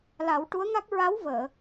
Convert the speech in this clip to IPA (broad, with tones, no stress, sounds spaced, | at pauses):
l a˨˩˦ w ʈ u˧˥ ə̯ ŋ a˦˥ k̚ ɹ a˧˥ w v əː˨˩˨